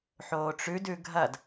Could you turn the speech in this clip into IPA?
ħ oː ʈ͡ʂ ʉ d ʉ ɡʱ ɐ d

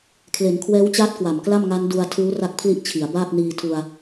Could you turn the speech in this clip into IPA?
kʰ l e˩˦ n kʰ w ɛː˦˥ w t͡ɕ aː˦˥ t̚ k w a˨˩ m k l a˥˩ m ŋ a˦˥ n d u˧ a̯ tʰ uː˦˥ r a˥˩ k̚ pʰ l i˥˩ ʔ t͡ɕʰ i˩˦ a̯ b aː˥˩ p̚ n iː˧ tʰ u˧ a̯

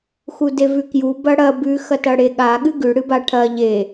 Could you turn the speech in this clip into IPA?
x u d e v ʉ k j u b ɐ ɽ ɐ b ʉ x ɐ t ɐ ɽ e ɠ a ɠ ɨ ɡ ʉ ɽ ɨ b a ʈʰ ɐ ʎ e

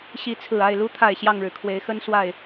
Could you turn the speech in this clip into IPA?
ɕ i˨˦ t͡sʰ ɹ̩˨˩ a˥˨ ɪ̯ l u˦ t̪ʰ a˥˨ ɪ̯ ɕ j ɑ˥˨ ŋ ɻ ɻ̩˩ kʰ w e˨˦ ɪ̯ x ə˦ n s w a˥˨ ɪ̯

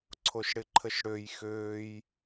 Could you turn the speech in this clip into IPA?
ǀʰ o ʃ ɽ ɪ ǃʰ ə ʃ ɽ ø j x øː j

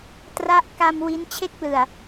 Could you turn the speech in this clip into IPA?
t r a˦˥ ʔ k a˧ m w i˦˥ n t͡ɕʰ e˦˥ k̚ l ɯ˨˩ a̯

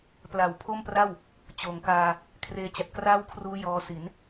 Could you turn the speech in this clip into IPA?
p l a˨˩ w pʰ o˥˩ m p r a˥˩ w | t͡ɕ oː˩˦ ŋ k aː˧ | kʰ r eː˧ t͡ɕ a˨˩ t̚ k r aː˥˩ w kʰ r uː˦˥ j ɔː˧ s i˩˦ n

